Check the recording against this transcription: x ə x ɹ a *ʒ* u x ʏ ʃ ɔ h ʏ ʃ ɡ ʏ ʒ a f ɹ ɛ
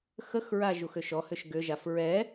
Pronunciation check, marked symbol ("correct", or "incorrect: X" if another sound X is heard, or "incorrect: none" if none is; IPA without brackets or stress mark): correct